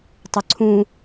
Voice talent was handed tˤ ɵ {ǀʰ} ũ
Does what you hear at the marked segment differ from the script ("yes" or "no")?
no